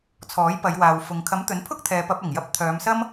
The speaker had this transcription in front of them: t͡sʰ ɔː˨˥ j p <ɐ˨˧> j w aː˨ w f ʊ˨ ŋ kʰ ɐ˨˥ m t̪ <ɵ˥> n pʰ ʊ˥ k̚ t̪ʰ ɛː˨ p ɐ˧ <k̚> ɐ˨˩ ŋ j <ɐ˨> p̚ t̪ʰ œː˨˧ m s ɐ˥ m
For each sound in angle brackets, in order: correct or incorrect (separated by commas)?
correct, incorrect, incorrect, incorrect